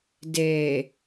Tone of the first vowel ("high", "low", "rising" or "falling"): low